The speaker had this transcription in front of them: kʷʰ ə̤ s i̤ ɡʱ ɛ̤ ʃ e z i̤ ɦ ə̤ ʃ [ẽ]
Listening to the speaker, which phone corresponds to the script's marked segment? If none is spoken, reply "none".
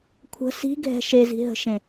ẽ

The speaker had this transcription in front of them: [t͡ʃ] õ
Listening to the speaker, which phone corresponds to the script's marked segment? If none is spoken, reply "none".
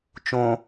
t͡ʃ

